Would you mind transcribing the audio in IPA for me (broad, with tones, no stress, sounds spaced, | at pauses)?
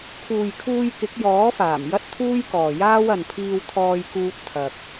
kʰ uː˨ j kʰ uː˧ j k ɪ˨˥ k̚ j ɔː˨˥ f aː˨˩ m j ɐ˥ t̚ t̪ʰ uː˥ j k ɔː˨ j aː˥ w ɐ˨ n pʰ iː˧ w t̪ʰ ɔː˧ j k uː˧ t̚ t̪ʰ ɐ˧ k̚